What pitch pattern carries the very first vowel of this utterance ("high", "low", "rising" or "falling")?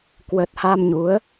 low